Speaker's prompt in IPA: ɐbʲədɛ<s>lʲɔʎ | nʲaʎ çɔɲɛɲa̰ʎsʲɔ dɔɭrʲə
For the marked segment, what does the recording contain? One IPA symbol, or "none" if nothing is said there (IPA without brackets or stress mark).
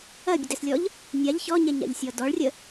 s